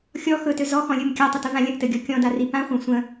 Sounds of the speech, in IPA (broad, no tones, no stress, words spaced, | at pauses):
xʲɔ xɵtø zɔxɔ̃lʲɵm kʲatˤʏtəvã lʲə̃ʔtɘɡʲɔ kʲɔ̃dari pãχʷã sʷə̃